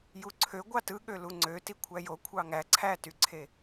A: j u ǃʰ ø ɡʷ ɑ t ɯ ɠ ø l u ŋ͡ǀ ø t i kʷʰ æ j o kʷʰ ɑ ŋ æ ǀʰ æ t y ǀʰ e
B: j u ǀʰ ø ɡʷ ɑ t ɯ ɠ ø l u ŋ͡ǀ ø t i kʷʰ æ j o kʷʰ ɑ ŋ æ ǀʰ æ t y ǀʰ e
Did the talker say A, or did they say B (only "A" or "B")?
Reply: B